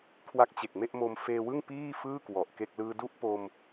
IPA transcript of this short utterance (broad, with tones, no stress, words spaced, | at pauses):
kʰwa˦˥k̚t͡ɕe˨˩k̚ me˥˩ʔmo˧m feː˧wɯ˥˩ŋ piː˥˩fɯː˥˩ kwɔ˨˩ʔke˥˩k̚ lɯː˧du˥˩ʔ po˧m